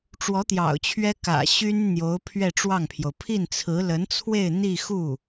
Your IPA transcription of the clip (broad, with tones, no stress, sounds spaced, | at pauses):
ʈ͡ʂ w ɔ˧˥ t̪ j ɑ̰˨˩ ʊ̯ t͡ɕʰ ɥ ɛ˥ k ä̰˨˩ ɕ y˥ n n̪ j o˧˥ ʊ̯ pʰ ɥ ɛ˥˧ ʈ͡ʂ w ɑ˥˩ ŋ pʰ j o˩ ʊ̯ pʰ i˥˩ n t͡sʰ ɹ̩˧˥ l ə˧˥ n t͡sʰ w e˥˧ ɪ̯ n̪ i˥˧ x u˥˩